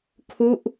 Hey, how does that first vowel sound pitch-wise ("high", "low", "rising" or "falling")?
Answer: falling